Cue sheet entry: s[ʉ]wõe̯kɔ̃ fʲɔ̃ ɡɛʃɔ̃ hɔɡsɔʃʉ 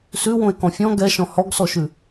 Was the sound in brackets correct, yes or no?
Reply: yes